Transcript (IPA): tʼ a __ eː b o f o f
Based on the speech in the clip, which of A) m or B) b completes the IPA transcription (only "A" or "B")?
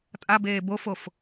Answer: B